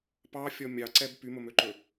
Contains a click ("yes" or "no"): yes